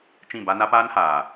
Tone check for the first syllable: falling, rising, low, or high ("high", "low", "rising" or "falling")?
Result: falling